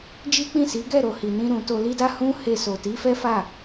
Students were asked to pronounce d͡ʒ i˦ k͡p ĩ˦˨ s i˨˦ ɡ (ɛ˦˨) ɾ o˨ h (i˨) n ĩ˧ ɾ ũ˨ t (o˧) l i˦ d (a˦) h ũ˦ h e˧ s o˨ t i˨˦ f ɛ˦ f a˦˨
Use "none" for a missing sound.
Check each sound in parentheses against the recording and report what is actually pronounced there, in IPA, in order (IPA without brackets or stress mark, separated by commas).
ɛ˦˨, i˨, o˧, a˦